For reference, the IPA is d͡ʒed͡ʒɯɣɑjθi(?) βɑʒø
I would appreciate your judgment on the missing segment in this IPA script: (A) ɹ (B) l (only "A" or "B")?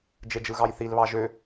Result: B